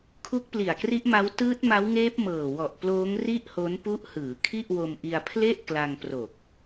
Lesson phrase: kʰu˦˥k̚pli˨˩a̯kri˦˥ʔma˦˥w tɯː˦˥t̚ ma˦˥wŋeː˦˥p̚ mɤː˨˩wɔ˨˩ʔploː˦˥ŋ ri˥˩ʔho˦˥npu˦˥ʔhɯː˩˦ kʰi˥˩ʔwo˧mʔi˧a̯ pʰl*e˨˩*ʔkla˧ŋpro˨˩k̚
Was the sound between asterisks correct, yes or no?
no